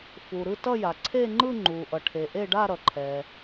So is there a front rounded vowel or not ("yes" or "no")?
no